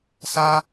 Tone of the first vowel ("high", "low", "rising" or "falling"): high